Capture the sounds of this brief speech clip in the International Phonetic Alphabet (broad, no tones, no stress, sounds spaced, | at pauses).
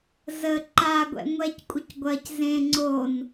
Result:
z ə ǃ a ɡʷ ɛ̰ ŋʷ ɛ c kʷʼ ɪ c ɡʷ ɐ c z ẽ ŋ͡ǀ o n